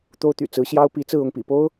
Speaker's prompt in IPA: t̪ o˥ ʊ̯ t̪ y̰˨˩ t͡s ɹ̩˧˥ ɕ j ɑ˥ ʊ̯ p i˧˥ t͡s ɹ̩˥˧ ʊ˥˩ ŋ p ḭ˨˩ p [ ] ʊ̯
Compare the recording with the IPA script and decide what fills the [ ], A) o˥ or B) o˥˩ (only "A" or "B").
A